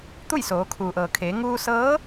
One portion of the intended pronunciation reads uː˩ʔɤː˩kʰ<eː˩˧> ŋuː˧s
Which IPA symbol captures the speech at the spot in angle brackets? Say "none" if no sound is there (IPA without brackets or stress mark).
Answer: eː˩˧